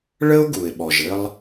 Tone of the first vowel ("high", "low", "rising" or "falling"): high